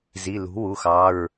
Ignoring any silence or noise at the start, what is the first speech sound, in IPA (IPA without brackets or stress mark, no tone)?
z